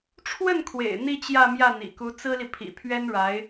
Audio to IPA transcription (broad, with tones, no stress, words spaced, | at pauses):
ʈ͡ʂʰwə˥˩nkʰwḛ˨˩ɪ̯ n̪i˥˧t͡ɕjä˥˧mjä˥˩ n̪ḭ˨˩ku˧˥ t͡sɹ̩˥li˨ pʰḭ˨˩pʰɥɛ˥nɻa˧˥ɪ̯